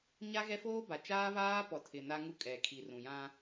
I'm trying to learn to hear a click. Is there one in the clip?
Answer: no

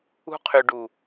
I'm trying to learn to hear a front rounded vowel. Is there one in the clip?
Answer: yes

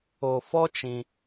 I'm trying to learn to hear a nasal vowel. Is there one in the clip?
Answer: yes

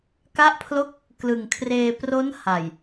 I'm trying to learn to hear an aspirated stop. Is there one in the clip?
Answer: yes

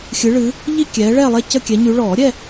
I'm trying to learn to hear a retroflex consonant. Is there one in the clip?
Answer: yes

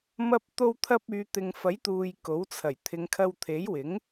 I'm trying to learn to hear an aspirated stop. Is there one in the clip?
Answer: yes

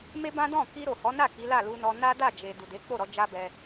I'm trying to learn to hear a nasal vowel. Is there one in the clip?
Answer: yes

